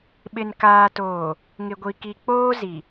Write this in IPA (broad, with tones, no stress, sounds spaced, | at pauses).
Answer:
ɓ ɪ˨ n k aː˨ t oː˨ | ŋ ɪ˨ ɡʷ i˨ k i˨ k͡p oː˦ z i˨